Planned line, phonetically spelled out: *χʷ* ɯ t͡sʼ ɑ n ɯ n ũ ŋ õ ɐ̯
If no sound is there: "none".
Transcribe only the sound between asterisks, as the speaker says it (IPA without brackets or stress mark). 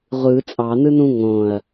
ʁʷ